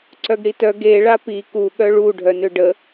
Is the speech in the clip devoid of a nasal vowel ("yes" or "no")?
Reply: yes